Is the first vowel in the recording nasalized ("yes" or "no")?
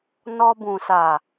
no